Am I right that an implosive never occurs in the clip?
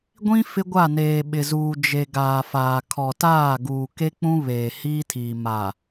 no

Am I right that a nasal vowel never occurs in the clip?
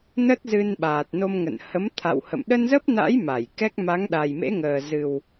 yes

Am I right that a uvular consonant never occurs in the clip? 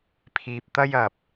yes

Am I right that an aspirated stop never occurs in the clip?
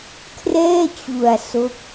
no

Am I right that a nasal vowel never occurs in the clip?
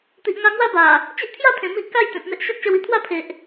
no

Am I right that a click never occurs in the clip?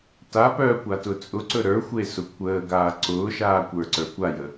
no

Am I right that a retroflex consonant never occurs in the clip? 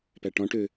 no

